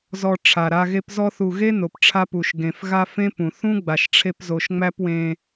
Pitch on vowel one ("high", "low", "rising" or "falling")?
high